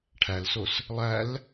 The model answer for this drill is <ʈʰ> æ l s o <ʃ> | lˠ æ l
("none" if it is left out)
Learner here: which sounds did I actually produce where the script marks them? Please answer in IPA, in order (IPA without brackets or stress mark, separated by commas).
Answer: ʈʰ, s